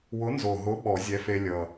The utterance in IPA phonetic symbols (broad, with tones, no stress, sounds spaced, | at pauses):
w ʊ˨˥ n z o˨˩ ɦ ʊ˨˥ ɓ ɔ˨˩˦ zʲ ɛ˨˥ f e˧ lʲ ʌ˨˩